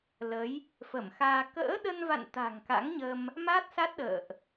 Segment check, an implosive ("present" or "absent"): present